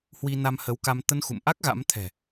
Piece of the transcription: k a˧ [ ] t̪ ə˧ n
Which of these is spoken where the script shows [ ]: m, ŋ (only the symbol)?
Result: m